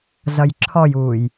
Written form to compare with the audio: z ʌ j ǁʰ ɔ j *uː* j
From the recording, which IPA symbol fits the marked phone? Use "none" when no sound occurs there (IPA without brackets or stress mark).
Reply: uː